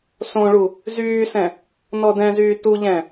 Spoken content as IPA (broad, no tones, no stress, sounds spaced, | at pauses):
s õ ɭ u | z yː s ɛ̃ | n ɔ d ɛ̃ z yː t u ʎ ɛ̃